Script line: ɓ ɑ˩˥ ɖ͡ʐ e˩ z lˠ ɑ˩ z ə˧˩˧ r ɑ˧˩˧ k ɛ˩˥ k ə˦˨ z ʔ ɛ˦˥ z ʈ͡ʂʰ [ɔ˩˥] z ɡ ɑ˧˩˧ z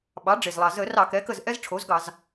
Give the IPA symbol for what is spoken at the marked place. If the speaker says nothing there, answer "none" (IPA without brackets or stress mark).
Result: o˩˥